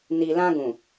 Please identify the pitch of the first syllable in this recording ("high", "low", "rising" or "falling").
low